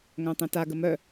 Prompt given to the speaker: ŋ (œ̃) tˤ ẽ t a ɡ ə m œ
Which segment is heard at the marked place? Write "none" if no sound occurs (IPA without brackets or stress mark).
œ̃